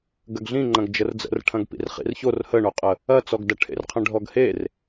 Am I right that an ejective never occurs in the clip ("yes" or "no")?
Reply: no